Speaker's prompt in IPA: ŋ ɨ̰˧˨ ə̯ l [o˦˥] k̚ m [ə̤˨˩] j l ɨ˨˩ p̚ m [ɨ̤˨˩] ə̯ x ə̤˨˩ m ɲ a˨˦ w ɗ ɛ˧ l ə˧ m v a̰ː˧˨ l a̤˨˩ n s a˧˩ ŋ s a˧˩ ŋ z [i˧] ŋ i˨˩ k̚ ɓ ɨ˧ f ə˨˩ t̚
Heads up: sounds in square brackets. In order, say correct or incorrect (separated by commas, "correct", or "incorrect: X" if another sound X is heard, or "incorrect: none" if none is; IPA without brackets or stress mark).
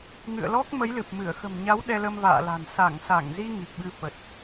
incorrect: ɔ˦˥, incorrect: ə˨˦, incorrect: ɨ˧˩, correct